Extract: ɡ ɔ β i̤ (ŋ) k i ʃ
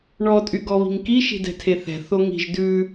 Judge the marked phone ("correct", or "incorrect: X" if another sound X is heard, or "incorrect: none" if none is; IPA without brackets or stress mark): correct